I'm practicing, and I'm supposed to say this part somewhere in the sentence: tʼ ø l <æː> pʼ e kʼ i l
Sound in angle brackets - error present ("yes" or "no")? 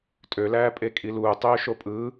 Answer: no